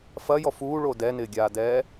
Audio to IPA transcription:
f ɐ j ɔ f uː ɭ o d ɛ n ɪː ɡʲ aː d ɛː

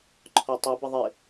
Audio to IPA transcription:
ǃʰ ɔ tˤ ʊ b ə ðˤ ɪ

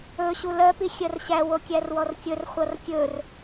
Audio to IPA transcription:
ɵ ɕ u l ɜ p i xʲ ɜ r ɕ æ w o kʲ æ r w ɔ r kʲ ɵ r χʷ ʌ r kʲ ɵ r

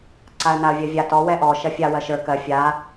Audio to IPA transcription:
ǀ a ə̯ n a ə̯ vʲ ɜ vʲ a t ɔ w ɛ ʔ ɔ ʃ ɜ fʲ a w ɜ ʃ ə˞ k ɜ fʲ a

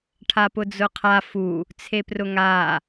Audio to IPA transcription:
ʈʰ a p ʊ d͡z ʊ qʰ a f u | t͡sʰ e p r ʊ ŋ a

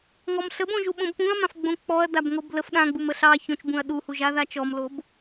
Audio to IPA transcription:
ŋ ɔ m ɬ ə b õ ʒ u ɓ õ b p ũ ɐ̯ m ã f ɡ͡b õ k͡p ɔ ɐ̯ d a b ŋ o b l ə f ɗ ã ɡ͡b u m ə ɬ ɑ ç õ t͡ʃ b ũ ɐ̯ ɗ u h u ʒ a ð a t͡ʃ ɔ m l o b

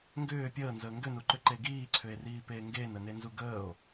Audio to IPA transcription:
ŋ ɡ ʏː pʲ əː n z əː ŋ ɡ ʏ n u ǃ ʏ ǃ e ɡ iː ǀʰ ʏ e̯ r iː p eː ŋ ɡ eː n ə n e n z u ɡ əː o̯

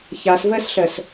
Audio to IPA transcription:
ç a s v ɜ s ɬ ɜ s

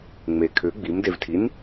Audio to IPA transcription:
ŋ͡m e kʰ ʏ ɡ͡b i m d e v tʰ i n

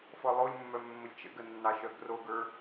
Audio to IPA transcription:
f ɔ lˠ o lʲ mː œ mː ə lʲ t͡ʃ ə̰ ɡ ə nː ɑ ʃ œ ɡ r o ɡ ə˞

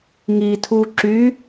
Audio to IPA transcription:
ŋ i tʰ u ǁ y

